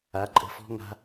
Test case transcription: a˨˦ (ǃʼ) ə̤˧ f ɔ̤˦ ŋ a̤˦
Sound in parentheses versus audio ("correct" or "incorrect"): correct